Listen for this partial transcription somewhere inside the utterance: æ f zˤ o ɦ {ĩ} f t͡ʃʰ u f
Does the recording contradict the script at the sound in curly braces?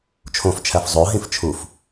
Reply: no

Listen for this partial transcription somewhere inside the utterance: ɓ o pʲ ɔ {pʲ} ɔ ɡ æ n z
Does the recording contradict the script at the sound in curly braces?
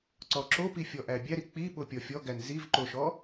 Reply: yes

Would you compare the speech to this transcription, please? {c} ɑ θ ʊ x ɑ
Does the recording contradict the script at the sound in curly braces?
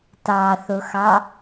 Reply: yes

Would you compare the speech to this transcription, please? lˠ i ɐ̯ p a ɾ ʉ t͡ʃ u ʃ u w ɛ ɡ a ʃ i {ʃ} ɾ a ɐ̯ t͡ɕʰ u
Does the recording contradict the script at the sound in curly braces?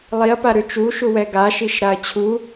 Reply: no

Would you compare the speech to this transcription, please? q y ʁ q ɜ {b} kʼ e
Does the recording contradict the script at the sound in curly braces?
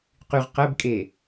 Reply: no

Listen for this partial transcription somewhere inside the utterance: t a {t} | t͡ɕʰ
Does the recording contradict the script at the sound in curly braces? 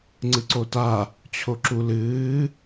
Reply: yes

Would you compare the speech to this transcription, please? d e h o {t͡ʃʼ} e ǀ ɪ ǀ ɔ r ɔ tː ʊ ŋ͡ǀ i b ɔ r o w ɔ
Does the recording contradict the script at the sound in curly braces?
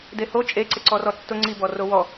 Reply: no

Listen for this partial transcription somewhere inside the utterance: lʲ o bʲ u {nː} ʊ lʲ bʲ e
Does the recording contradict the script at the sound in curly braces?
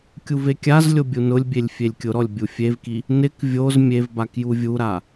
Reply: yes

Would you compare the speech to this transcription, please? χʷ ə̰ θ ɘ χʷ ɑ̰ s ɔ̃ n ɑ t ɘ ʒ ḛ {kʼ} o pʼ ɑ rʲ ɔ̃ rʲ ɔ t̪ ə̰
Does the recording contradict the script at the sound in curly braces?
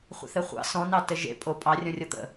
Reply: yes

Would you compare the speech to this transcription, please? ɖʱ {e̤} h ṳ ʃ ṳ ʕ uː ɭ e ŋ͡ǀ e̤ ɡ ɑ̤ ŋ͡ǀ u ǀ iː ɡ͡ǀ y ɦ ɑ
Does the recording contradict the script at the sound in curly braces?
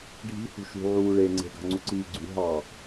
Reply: yes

